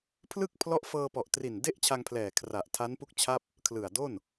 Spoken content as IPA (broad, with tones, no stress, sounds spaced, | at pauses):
pʰ l ɯ˥˩ k̚ pʰ l ɔ˦˥ ʔ f ɤː˧ p ɔ˨˩ ʔ t r i˨˩ n d e˥˩ ʔ t͡ɕʰ a˧ ŋ pʰ l ɛː˨˩ kʰ r a˨˩ ʔ tʰ a˦˥ n p u˥˩ k̚ t͡ɕʰ a˥˩ p̚ | kʰ l ɯ˨˩ a̯ d o˥˩ n